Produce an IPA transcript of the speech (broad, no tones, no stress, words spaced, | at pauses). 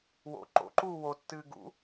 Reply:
wo̰ ǃo̰ǃuː wotːɨː ɡṵ